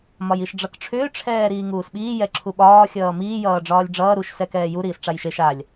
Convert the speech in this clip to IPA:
m ɒ j i ʃ ɖ͡ʐ ʌ k ʈ͡ʂʰ ʏː ʈ͡ʂʰ ɛː ɾ iː ŋ uː s ɓ iː j ɛ ǁʰ u ɓ ɒː xʲ ʌː m iː j ʌː ɖ͡ʐ ɒː lʲ ɖ͡ʐ ʌː ɾ u ʃ s ɛ k ɛː j u ɾ iː s ʈ͡ʂ a j ʃ e ʃ a lʲ

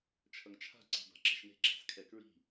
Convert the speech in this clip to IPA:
t͡ʃʰ ʌ ŋ t͡ʃʰ a̤ ǀ i̤ b a̤ ǁ ɛ̤ ʃ n e̤ ǁ a̤ s kʰ ɛ k ɹ i̤

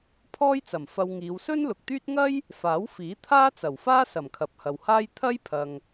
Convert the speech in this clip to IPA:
pʰ ɔː˥ j t͡s ɐ˨˩ m f ɐ˧ w ŋ iː˨˧ w s ɵ˥ n l ʊ˨ k̚ t̪ yː˥ t̚ ŋ ɐ˥ j | f aː˨˥ w f iː˨˥ t̪ʰ aː˥ t͡s ɐ˨˩ w f aː˥ s ɐ˨˩ m kʰ ɐ˨ p̚ h ɐ˨ w h aː˥ j t̪ʰ ɐ˥ j pʰ ɐ˨ ŋ

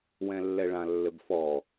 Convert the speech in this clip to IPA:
w ɛ̃ lː ɛ ɭ ã lː ɘ b f ɔ

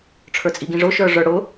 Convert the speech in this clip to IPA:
ʈ͡ʂʰ ə˞ t͡sʼ i ɡ ĩ ʐ ʊ ʃ ə˞ ʐ ə˞ ɽ ʊ

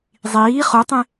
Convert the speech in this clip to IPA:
zˤ iː χ u tˤ ẽ

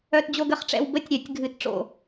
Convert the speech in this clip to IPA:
œ˥˧ t d͡ʑ o˥˧ ɡ ə˨˩˦ χ ʈ͡ʂ ɛ̰˥˧ w b ə˥˧ tʲ ɾʲ œ˨˩˦ tʲ ɡʱ ɨ˨˥ t ʈ͡ʂ o̰˥˩

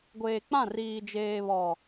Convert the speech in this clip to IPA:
ɡʷ eː˨ k͡p ã˦˨ r iː˨ d͡ʒ eː˨ β ɔ˨

